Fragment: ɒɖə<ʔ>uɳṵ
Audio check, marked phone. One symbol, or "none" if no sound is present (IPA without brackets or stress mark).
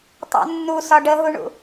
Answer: ɦ